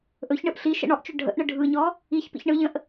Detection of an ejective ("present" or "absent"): absent